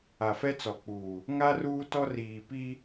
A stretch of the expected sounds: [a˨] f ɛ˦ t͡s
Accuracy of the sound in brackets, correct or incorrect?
correct